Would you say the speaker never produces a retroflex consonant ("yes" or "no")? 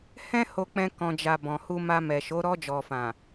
yes